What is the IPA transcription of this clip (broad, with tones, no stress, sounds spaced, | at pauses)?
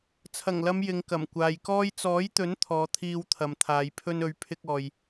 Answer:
t͡sʰ ɐ˨˩ ŋ l ɐ˨˧ m j ɪ˨˧ ŋ k ɐ˨˩ m kʷ aː˨ j k ɔː˧ j t͡s ɔː˨˥ j t̪ ɵ˨˥ n t̪ʰ ɔː˨˧ t̪ʰ iː˧ w t̪ʰ ɐ˨ m t̪ʰ aː˨˧ j pʰ ɵ˧ n ɵ˨˧ ɥ pʰ ɪ˧ k̚ ɔː˨ j